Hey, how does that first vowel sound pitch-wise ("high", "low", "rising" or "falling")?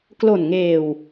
low